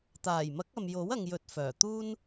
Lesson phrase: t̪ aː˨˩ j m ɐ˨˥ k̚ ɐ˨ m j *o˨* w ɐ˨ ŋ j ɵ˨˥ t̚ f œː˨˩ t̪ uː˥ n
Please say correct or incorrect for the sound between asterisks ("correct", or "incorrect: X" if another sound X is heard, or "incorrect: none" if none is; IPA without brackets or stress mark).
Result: incorrect: o˨˥